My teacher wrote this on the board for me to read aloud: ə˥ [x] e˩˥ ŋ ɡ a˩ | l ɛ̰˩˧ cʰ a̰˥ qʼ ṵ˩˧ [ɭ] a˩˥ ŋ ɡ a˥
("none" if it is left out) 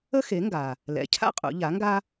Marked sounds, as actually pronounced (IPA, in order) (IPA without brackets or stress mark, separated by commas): x, ʎ